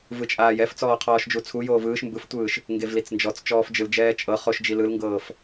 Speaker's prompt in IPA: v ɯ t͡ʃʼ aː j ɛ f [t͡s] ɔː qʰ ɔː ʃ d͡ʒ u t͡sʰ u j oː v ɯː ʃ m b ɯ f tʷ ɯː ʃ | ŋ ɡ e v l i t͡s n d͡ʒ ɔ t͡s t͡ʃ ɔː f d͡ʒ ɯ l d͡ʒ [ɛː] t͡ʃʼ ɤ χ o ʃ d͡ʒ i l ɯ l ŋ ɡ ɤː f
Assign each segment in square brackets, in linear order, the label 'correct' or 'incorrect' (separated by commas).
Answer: correct, correct